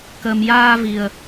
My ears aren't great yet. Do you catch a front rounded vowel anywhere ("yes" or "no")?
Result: no